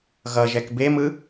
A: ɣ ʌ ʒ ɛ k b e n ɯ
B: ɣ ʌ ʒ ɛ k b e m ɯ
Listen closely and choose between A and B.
B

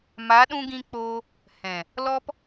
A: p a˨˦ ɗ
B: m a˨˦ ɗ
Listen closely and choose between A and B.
B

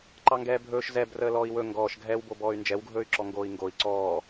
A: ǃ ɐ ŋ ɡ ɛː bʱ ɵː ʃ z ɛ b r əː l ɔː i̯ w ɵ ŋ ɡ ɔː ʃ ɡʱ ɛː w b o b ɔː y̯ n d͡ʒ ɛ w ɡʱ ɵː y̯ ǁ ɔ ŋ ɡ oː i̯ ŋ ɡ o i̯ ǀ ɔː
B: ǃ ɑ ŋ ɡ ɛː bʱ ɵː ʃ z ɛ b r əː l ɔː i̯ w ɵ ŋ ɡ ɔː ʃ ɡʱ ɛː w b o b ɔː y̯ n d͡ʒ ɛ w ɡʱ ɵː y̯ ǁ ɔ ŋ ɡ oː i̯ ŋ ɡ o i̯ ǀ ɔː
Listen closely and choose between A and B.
B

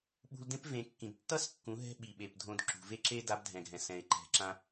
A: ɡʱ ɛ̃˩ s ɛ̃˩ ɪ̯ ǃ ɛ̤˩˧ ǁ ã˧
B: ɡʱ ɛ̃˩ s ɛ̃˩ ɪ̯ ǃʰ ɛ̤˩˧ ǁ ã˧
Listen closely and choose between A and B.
A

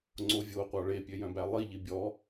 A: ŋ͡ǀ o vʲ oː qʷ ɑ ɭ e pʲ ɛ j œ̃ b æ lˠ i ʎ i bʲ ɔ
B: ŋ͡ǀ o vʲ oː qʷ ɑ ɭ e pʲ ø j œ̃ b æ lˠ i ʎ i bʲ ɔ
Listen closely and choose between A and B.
B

